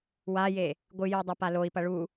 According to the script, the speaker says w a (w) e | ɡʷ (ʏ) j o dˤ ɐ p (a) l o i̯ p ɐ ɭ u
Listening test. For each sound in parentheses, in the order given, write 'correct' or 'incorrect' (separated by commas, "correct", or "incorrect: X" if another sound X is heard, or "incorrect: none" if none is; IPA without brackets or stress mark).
incorrect: j, incorrect: ɨ, correct